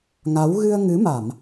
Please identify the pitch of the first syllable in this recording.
rising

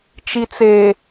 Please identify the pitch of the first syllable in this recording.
low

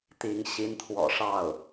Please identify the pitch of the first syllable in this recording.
rising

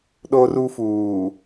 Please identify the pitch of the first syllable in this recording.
high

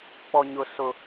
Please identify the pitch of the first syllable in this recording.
high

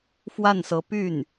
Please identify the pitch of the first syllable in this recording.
falling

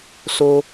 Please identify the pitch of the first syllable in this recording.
high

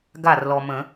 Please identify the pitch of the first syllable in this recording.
falling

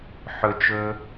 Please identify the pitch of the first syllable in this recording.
high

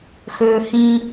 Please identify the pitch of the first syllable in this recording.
high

